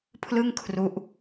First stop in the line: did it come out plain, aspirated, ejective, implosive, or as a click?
aspirated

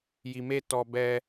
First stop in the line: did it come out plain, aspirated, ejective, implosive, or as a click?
plain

